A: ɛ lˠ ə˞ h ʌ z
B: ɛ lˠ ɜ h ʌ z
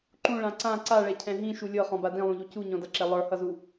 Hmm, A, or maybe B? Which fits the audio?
A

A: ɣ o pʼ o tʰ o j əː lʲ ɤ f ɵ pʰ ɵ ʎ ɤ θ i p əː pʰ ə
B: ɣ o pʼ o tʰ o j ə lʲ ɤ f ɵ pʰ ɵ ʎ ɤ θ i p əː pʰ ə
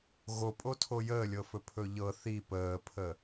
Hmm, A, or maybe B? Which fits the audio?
A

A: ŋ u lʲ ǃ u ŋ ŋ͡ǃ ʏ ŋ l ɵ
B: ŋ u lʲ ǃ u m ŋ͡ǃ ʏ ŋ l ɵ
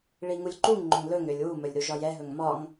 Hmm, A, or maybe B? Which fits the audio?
A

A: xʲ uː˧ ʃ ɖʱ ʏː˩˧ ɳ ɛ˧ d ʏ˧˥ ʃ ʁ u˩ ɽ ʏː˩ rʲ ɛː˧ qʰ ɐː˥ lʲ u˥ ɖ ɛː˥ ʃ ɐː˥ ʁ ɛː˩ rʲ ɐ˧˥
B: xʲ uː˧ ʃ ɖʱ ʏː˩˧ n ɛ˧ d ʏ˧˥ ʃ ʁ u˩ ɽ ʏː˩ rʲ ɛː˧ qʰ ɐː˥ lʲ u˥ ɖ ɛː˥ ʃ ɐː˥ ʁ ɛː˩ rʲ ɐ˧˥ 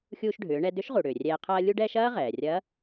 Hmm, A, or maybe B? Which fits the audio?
A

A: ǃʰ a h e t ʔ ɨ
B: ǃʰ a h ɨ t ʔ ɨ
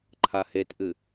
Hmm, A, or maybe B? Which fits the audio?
A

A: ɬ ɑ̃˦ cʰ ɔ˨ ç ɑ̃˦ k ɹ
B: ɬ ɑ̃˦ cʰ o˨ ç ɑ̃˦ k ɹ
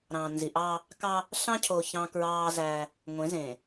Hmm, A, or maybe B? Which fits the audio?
B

